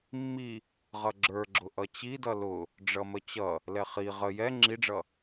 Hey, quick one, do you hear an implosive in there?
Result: no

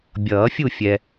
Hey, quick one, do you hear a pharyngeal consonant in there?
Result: no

